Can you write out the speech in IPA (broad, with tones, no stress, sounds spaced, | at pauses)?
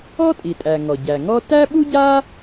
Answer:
ɔ˥ tʼ i˩ tʼ æ˩ ŋ ɔ˩ ɟ æ˩ ŋ ɔ˥ t æ˥ ɓ u˥ ɟ a˥